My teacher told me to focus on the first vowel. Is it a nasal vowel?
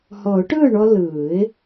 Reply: no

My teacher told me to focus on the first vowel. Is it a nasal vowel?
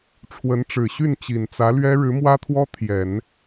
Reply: no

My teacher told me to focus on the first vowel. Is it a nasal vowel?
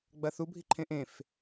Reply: no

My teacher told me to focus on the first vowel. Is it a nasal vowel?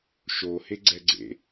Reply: no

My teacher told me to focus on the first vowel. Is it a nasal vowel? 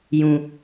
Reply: yes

